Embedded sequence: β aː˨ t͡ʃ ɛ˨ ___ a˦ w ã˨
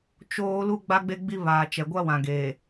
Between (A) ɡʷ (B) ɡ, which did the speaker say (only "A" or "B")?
A